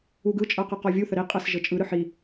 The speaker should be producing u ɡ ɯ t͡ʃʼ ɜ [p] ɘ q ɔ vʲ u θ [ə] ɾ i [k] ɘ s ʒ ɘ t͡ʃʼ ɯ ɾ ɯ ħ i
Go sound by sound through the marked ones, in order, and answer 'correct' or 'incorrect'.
incorrect: q, correct, incorrect: qʼ

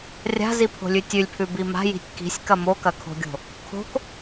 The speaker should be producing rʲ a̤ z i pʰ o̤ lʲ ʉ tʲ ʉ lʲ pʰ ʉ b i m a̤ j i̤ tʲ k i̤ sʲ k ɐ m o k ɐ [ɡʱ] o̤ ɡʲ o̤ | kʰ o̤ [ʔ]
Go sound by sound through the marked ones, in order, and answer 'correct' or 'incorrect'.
incorrect: kʰ, incorrect: k

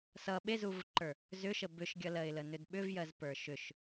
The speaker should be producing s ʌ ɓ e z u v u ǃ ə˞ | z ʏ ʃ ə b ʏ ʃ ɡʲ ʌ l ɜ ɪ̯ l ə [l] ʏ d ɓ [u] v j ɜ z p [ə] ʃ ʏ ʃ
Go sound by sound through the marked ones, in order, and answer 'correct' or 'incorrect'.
incorrect: n, incorrect: ʏ, incorrect: ə˞

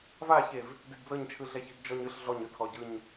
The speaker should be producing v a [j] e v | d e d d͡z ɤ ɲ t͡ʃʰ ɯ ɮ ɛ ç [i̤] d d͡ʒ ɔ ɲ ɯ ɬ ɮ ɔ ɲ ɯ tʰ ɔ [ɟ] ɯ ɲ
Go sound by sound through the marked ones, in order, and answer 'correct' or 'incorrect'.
incorrect: ç, correct, correct

